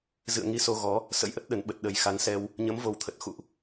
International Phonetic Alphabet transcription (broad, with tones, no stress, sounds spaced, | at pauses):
z ɨ̰˧˨ ə̯ ŋ i˧ s o˧ ɣ ɔ˨˦ | s ə̰˧˥ j ʔ ə˦˥ t̚ ɗ ə˨˩ n ɓ ə˨˩ t̚ ɗ ə˨˩ j x a˨˦ n s ɛ˧ w | ɲ ə˨˦ m v o˨˩ w t̪ʰ ə˨˩ t̚ x ṵ˧˨ ʔ